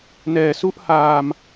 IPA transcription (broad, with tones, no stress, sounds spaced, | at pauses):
n ɛː˩˦ s u˥˩ ʔ h aː˧ m